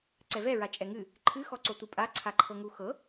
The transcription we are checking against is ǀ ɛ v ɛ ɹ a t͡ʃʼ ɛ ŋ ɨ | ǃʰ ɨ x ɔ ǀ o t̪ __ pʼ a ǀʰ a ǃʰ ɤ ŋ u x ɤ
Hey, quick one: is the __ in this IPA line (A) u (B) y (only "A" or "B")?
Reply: A